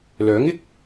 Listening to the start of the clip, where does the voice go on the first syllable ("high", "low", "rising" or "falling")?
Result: rising